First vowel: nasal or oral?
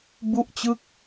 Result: oral